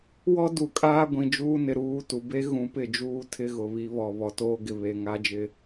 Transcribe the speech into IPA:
w ɔ˦ d u˨ kʼ aː˦ ɡʷ ĩ˨ d͡ʒ uː˦ n ɪ˨ ɾ uː˦˨ t u˨ b e˦ ɣ ũ˨˦ p ɪ˦˨ d͡ʒ uː˦ tʰ ɪ˦ ɣ ʊ˨ β i˦ β ɔ˨ β ɔ˨ t oː˦ ɡ ɪ˨ β e˨ ŋ a˦ d͡ʒ ɪ˦

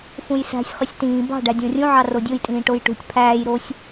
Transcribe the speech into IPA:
f ũ j s æ̤ sʲ χ y sʲ t ĩː b ɑ̤ ɖ æ dʲ õ rʲ ũ ʕ ɑ r o dʲ o j tʼ ĩː ʈ o j ʈ ṳ tʲ pʰ æː j ɾ o sʲ

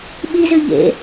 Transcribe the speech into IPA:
ɓ i z ʉ ʎ ḛ

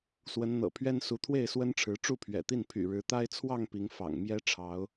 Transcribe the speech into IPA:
s w ə˨˦ n n̪ ɤ̰˨˩ pʰ ɥ ɛ˦ n s u˨˦ t̪ʰ w e˥˨ ɪ̯ s w ə˦ n ʈ͡ʂʰ ɻ̩˨˦ ʈ͡ʂ u˥˨ pʰ ɥ ɛ̰˨˩ t̪ i˥˨ n pʰ y̰˨˩ ɻ ɻ̩˨˦ t̪ a˦ ɪ̯ t͡sʰ w ɑ˥˨ ŋ p i˨˦ ŋ f ɑ̰˨˩ ŋ m j ɛ˦ ʈ͡ʂʰ ɑ˨˦ ʊ̯

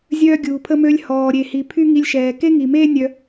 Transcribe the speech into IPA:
zʲ œː˧ ɡʲ uː˩ pʰ ə˧ m ø˧ lʲ h ɔː˩ ɾʲ e˩ h i˩ pʰ y˥ ŋ i˧ lʲ ʃ ɛː˩ k e˥ ŋ i˩ m eː˥ nʲ œ˧

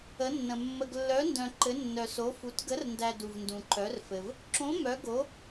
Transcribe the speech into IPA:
ə˧˥ nː ə̃˧ mː ə˧ ɡ lː œ˧˥ n d œ̃˧ ǃ ɘ˧˥ nː œ˧ s o˧˥ f u˧˥ t ɡ ə˧˥ r n d æ˧ d u˧ v n d ũ˧ ǃ œ˧˥ r f ɘ˧ v | ǁ õ˧˥ m œ˧˥ ɡ o˧˥

